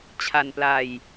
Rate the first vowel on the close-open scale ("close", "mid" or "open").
open